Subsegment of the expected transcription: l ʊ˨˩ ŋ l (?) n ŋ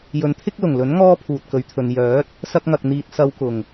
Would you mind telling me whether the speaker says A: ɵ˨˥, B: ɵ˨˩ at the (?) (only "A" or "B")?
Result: A